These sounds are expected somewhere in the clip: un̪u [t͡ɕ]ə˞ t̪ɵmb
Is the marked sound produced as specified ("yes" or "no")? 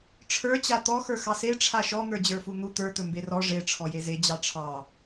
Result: no